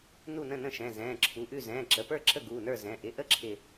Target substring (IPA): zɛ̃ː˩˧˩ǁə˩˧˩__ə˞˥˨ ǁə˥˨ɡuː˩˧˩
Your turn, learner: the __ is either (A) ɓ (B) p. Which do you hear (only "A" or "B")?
B